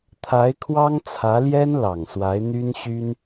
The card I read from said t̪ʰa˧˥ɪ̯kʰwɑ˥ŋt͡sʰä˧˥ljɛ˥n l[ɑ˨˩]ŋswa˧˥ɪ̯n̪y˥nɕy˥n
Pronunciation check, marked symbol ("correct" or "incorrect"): correct